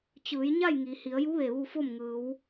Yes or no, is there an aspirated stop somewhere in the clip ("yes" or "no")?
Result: no